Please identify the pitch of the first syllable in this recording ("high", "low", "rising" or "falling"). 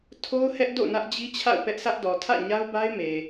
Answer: high